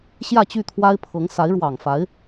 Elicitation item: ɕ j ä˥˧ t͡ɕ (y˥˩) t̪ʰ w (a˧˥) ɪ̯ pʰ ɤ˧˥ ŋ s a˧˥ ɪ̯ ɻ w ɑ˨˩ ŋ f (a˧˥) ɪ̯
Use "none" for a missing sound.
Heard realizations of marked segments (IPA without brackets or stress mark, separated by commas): y˥˩, a˥, a˧˥